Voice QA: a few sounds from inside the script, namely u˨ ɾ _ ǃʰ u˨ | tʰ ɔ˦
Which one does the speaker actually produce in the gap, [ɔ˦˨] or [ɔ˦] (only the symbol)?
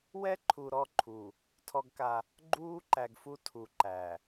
ɔ˦˨